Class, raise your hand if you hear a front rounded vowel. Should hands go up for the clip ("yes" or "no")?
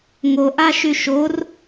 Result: yes